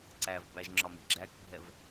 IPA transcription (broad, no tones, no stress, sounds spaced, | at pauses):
ǀ æ v b æ ʒ ŋ͡ǁ ɒ m i̤ ɡ͡ǁ æ k bʱ ɛ v